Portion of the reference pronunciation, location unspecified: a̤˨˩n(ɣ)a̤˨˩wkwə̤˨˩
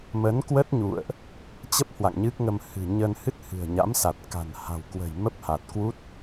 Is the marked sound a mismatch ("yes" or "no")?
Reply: yes